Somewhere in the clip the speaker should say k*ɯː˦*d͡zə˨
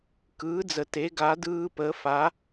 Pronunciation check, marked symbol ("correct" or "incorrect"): incorrect